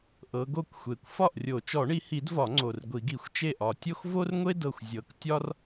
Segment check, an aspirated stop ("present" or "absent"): absent